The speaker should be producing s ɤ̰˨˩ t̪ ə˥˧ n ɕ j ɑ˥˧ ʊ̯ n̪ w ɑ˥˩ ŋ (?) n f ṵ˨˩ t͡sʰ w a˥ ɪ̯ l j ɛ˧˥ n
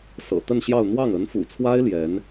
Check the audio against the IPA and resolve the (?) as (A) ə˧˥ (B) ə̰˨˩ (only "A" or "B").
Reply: A